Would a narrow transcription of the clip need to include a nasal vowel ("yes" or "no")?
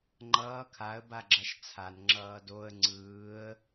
no